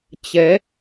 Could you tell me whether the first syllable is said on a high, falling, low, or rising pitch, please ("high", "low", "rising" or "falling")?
rising